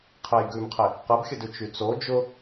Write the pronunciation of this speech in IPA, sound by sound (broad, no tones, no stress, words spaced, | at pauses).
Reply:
qʰejɡʉmqʰe | qəbxʲədʉ t͡ʃyt͡so d͡ʒʊ